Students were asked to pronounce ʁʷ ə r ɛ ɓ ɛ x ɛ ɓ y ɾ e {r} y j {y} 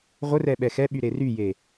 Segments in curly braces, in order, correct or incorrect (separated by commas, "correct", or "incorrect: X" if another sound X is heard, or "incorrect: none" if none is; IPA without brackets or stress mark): correct, incorrect: e